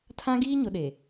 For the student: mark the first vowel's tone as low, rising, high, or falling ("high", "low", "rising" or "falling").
high